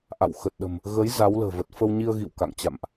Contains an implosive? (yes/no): yes